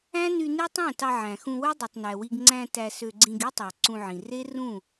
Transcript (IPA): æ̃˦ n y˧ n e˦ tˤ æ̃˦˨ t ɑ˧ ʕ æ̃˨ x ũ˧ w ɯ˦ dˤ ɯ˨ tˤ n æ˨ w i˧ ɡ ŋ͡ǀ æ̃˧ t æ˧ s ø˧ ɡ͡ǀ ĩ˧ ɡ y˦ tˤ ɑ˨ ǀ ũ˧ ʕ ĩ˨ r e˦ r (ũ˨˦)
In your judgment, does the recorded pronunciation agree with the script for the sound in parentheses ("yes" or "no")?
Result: no